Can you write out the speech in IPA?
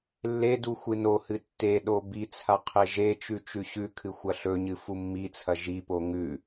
lːedu xʷɨnohɨ tːeɗo bit͡sʰa qʰeʒet͡ʃʉ t͡ʃʉɕʉkʰɨ xʷɐɬɵɲɨ fumːit͡sʰɐ ʒipo ŋʉ

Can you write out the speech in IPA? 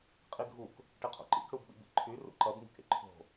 qʼiɡʱuk | ʈɪqʰo̰ǃḭk ɽubɓḭbḭǃʰy rṵǃʌb ŋṳkɽḭǃʰo̤

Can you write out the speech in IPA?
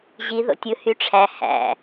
ʑi ðo̰tʲɯ hyʈ͡ʂʰæ hæ̰

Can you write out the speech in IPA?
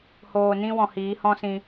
hoː˨nĩ˧wɔ̃˨ hiː˨˦hɔ̃˦sĩ˧

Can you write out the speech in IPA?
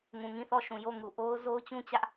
ŋũ˨ŋĩ˦˨θɔ˦˨ʃũ˨ jo˦˨ŋu˨ʔo˦ʊ̯ zo˦ʊ̯t͡ɕũ˦t͡ɕä˦ʔ

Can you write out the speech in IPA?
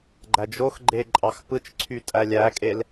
ɡ͡ǃæd͡ʒoxɡ͡ǃe ǃʼɑxpɯt͡ʃǀʰy tʼælʲækʼel

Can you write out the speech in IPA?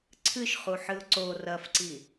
ǀʰɨʃχuħɨʊ̯ ǀo rɐfǀi

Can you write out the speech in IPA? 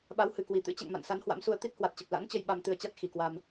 ɓa˨˦whɨ˨˩kwi˨˩t̪ɨ̰˧˥ t͡ɕɛ̰˧˨ŋma̰˧˨nsa˨˦n hwa̰˧˥msu˧ə̯ t̪i˦˥t̚hwa˨˩t̚t͡ɕə˨˩p̚ la̰˧˥nt͡ɕə˧j ɓa˧m t̪ɨ˧ə̯t͡ɕa˦˥t̚ xi˨˩kwa˧m

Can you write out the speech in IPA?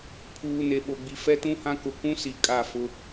pʰuː˨ne˨ɓo˨ɡ͡bi˨ fɛ˦tũ˦hã˦kʊ˨ kũ˦si˨ kʼa˦˨fʊ˦

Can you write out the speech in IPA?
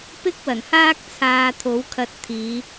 pɪ˥k̚wɐ˨˩nhaː˥k̚ t͡sʰaː˧t̪ʰo˨˥wkʰɐ˧t̚ t̪ʰiː˨˧

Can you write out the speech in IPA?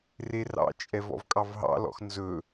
rerɑ̰t͡ʃʼɛv ɔ̰vkʼɑvɦɑ̰lɔ̰x nzɵ

